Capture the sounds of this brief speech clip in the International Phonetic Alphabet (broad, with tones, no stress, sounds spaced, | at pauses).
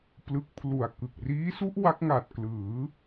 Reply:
p l ɯ˦˥ k̚ pʰ l u˨˩ a̯ k ɯ˨˩ k̚ r iː˦˥ s u˦˥ ʔ w a˦˥ k̚ ŋ a˨˩ t̚ k l ɯː˩˦